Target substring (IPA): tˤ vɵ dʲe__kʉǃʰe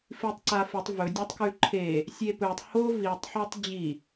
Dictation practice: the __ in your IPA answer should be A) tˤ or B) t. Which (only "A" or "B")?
A